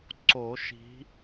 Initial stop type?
click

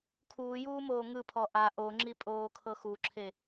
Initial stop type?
aspirated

